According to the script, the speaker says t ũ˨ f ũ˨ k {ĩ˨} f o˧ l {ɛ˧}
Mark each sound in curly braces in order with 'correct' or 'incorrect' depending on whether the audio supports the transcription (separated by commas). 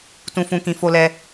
correct, correct